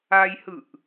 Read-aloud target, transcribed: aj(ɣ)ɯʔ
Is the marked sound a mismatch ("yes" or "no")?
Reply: yes